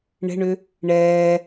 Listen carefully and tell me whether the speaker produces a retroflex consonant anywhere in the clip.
yes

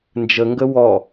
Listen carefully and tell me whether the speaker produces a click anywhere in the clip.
no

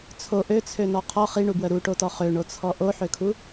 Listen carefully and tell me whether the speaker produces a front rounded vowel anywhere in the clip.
yes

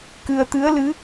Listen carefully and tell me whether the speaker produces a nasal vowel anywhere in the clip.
no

